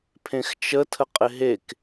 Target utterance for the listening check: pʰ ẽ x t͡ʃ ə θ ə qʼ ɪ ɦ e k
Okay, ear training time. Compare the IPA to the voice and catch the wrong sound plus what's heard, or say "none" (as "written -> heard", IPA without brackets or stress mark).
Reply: θ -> tʰ